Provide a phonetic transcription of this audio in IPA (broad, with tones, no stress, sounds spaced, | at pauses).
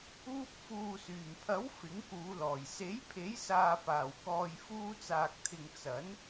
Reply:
uː˧ p̚ f uː˨ s yː˨˩ m pʰ ɐ˨˥ w f ɪ˨˥ ŋ k uː˨˧ l ɔː˨˩ j s e˨˥ j pʰ e˨˥ j s aː˨ p aː˨˩ w k ɔː˨ j f uː˧ t͡s aː˨ k̚ t̪ʰ ɪ˨ ŋ t͡s ɐ˨˥ n